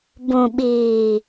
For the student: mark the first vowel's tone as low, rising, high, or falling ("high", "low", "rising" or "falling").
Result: low